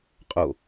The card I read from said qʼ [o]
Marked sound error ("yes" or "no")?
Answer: no